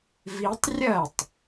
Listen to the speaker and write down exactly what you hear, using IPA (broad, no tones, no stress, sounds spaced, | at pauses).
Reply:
v i tˤ rʲ ɐ tˤ